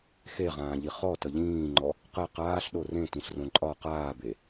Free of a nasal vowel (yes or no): no